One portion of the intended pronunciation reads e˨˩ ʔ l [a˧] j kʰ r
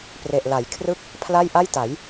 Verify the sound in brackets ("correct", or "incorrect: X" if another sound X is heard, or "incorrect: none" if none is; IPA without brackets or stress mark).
incorrect: a˩˦